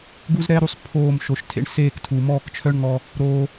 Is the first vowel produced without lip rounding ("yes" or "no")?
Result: no